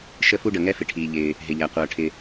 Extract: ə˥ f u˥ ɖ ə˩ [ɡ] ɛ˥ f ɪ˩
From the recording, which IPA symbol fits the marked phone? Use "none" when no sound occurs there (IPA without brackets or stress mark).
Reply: ŋ